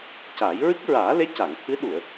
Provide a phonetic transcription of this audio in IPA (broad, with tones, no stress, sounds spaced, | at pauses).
c a˨˩˦ j ɹ ɨ˦˥ k̚ ɹ aː˨˩˦ l e˧˥ c a˨˩˨ ŋ t̪ʰ ɨ˧˥ ɗ u˨˩˨ ə̯